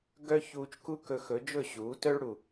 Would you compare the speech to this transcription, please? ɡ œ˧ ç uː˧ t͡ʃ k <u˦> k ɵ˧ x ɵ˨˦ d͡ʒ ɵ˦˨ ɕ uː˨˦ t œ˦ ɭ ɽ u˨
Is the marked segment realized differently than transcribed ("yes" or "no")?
no